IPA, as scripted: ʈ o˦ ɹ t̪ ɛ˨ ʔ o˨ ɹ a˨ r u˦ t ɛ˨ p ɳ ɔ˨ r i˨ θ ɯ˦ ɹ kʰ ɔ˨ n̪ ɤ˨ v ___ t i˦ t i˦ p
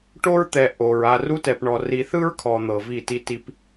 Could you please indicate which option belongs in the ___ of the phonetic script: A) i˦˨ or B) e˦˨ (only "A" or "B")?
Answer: A